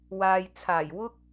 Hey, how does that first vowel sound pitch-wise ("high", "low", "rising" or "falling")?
low